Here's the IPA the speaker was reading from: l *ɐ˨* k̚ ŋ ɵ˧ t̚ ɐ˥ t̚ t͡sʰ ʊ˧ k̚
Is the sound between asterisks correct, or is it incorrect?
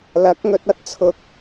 incorrect